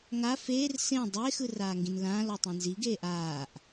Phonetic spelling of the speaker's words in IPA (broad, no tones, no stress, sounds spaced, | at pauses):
ŋ a f eː r s ẽ dˤ eː x ɯ r aː ŋ ɡ ĩ n l ãː l ɔ tˤ ẽ n z i ɡ eː ʔ aː ʔ